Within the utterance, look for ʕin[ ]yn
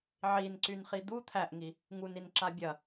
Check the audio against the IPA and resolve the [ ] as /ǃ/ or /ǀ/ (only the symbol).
ǀ